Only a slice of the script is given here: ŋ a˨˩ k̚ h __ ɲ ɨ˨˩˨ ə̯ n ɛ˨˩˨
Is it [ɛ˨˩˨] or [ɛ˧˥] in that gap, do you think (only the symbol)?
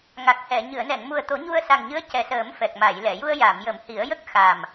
ɛ˨˩˨